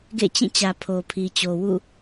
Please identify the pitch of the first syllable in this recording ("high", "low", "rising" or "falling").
falling